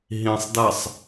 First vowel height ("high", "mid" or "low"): high